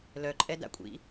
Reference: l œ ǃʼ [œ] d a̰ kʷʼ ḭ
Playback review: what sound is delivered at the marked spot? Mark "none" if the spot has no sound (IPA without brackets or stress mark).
ɛ